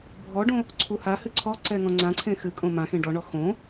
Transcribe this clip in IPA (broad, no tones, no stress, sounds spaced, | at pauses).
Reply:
bʱ ɔ ɖ õ | ǀʰ u h a h ɨ ǀʰ ɔ ǀ ɛ ŋ ɔ̃ ŋ͡ǀ ã ǀʰ ẽ x ɨ kʼ õ m ã x ẽ ɖ ɔ ɳ ɔ x õ